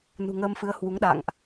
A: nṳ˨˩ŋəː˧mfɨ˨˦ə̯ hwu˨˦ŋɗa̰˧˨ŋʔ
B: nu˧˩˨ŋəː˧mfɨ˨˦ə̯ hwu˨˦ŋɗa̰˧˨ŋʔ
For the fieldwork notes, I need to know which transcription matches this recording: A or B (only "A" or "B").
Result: A